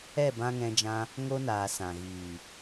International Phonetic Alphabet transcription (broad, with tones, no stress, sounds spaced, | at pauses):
ɛ˦˨ b ã˧ ŋ ɛ̃˧ d͡ʒ ã˧ | ŋ o˦ n aː˨ s ã˨ ɣ iː˨